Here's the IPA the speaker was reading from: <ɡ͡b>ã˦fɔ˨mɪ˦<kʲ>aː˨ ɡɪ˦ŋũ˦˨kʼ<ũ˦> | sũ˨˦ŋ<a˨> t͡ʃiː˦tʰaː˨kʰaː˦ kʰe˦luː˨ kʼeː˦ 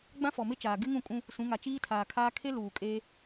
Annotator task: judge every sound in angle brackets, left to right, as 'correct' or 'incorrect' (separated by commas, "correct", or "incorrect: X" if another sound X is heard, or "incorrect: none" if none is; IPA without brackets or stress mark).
correct, incorrect: t͡ʃ, correct, correct